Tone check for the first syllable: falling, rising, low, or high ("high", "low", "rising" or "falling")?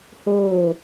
falling